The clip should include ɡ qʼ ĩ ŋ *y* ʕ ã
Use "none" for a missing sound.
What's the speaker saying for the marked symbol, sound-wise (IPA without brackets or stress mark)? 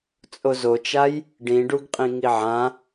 i